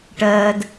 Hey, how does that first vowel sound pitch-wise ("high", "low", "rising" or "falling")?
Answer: high